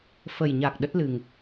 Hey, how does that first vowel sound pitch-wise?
low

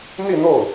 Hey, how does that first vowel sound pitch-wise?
falling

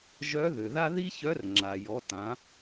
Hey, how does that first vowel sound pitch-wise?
rising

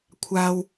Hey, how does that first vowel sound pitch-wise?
low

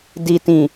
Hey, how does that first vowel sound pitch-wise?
low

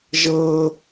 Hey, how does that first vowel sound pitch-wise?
high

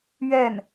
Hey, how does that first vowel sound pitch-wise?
falling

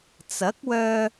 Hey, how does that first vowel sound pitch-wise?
rising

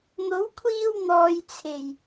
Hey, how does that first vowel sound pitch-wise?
rising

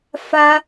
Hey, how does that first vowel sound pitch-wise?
high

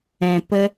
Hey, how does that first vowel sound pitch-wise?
low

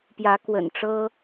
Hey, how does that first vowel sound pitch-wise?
rising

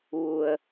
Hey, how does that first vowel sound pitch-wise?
low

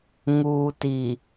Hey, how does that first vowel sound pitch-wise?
low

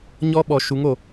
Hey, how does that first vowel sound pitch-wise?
high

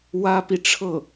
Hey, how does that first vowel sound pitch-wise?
high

